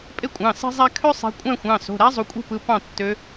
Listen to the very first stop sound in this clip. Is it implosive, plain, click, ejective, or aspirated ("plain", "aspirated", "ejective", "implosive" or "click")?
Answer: ejective